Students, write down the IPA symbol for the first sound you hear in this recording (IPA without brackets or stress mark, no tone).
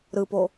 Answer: ɾ